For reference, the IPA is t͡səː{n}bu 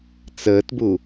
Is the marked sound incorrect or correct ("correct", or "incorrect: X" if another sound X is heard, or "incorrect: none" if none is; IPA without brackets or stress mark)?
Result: incorrect: t